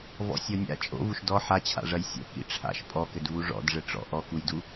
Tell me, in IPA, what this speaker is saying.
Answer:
v ɔ̰ sʲ ɔ nʲ a̰ t͡ʃʼ o̰ v u ʃ d ɔ ħ a t͡ɕʰ a̰ ʐ ɐ j sʲ o̰ k ḭ ʈ͡ʂʰ a̰ ʃ pʼ ɔ k ɘ d v u ʐ ɔ̰ d ʐ ɘ ʈ͡ʂ ɔ̰ ʔ ɔ k u j d u

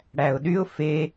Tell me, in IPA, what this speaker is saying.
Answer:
ɽ æ ʊ̯ ɗ y ʊ̯ f e

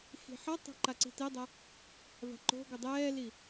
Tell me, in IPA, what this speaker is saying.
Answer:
x i̤ ħ ʌ tˤ a̤ ǃ a ǀ i̤ t e dˤ a | v a̤ ǃ o̤ ɡʷ ʌ dˤ ɛː l i

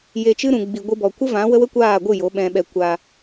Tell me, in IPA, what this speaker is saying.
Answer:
j e˧ t͡ʃ ɨ˦ ɾ ũ˧ ɡ͡b i˧ ɡʷ ɨ˦ b ɔ˧ kʷ ə˦ v ã˨˦ w ə˦ w ə˦ kʷ aː˦˨ ɡʷ ɨ˦˨ j o˨˦ ɓ ɛ̃˧ ɓ ɛ˧ kʷ aː˧

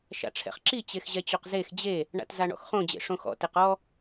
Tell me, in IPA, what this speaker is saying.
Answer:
ʃ a̰ ʈ͡ʂʰ ɛ̰ χ ǁ i t͡ɕ e x ʑ ɛ t͡ɕ o q z e x d͡ʑ e | ɳ a̰ t z a ɳ ɔ̰ x χ õ d͡ʑ ḛ ʂ õ x ɔ̰ t e q ɔ

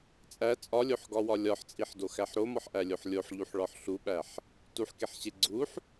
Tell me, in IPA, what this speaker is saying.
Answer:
t͡sʼ æ t͡sʼ ɒ lʲ o ħ ɡ ɒ w ɒ lʲ ɒ ħ t͡sʼ i ħ d o x æ ħ ɾ o m ɒ ħ ʔ æ lʲ o ħ lʲ o ħ ʎ u ħ ɭ ɒ ħ ɬ u ɓ æ ħ | t u ħ k e ħ ɕ e ɡ͡ǀ u ħ

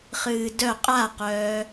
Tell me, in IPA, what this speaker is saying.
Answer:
χ ɨː d œ qʼ a q œː

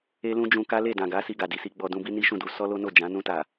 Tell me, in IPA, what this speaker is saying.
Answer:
e˦ l ũ˦ d͡ʒ ũ˧ k a˦ l e˦˨ d ã˨ ɡ a˨˦ s i˧ ɡ a˨ d i˨˦ s i˧ ɡ͡b ɔ˧ d ũ˧ b i˦ n i˦ ʃ ũ˦˨ d u˧ s ɔ˦ l o˦ n o˦˨ d͡ʒ ã˨˦ n ũ˧ t a˨

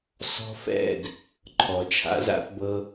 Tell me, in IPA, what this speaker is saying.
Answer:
s ɔ̤˧ f ɛ̰˦˨ d | ǃʰ ɔ˨ t͡ʃʰ a̰˧ z a̰˦ θ b ɤ˧

